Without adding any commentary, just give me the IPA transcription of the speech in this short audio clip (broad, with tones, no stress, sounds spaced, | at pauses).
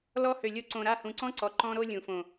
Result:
l ɔ˧ h ø˨ lʲ o˧ ǀ õ˨ ɾ a˦˨ h ũ˨ ǀ ɔ̃˦ ǀ ɔ˨ ǃ ɔ̃˦ ɾ o˦ lʲ ũ˨ f õ˨